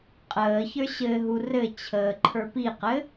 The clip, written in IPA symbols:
qʼəː çə˞ɕɘɦu rɘ t͡ɕʰəːǃʰə˞piqɘ

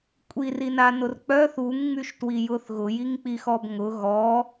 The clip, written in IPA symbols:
kʷʼirinanʊr k͡pœθ uŋŋ͡myʃtwijʊθ ɣʊjiŋk͡pixɔb ŋʊ ɣɔ

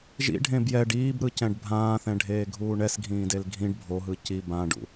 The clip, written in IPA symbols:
ʒḭɖʱẽ bjɛɖ iːbɾɯcɛ̃ɖ bʱãːθɛ̃ɖʱeːɡʱuː ɳɛsɡʱĩːdel ɡʱĩɖ bʱoɦɯ ci bãɖṵ

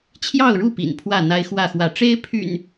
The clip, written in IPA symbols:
t͡ɕʰjɑ˥˨ʊ̯ɻu˥˨ pḭ˨˩npʰwä˥˨n̪a˦ɪ̯xwä˥˨ xwä˨˦ ʈ͡ʂe˦ɪ̯pʰy̰˨˩n

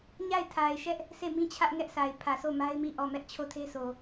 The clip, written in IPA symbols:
ɲa˦˨ɪ̯tʰa˨ɪ̯ʃɛ˦ʔ | sʰe˦˨mĩ˦t͡ɕʰä˦ʔ ŋɛ˦ʔsa˨ɪ̯ pʰä˨so˦˨ma˦ɪ̯mi˦˨ ʔɔ˦˨ mɛ˦ʔt͡ɕʰo˦˨tʰe˦sʰo˨

